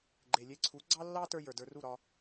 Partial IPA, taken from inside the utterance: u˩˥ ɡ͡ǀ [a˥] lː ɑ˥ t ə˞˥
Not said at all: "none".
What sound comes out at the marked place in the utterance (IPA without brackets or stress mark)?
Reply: ɑ˥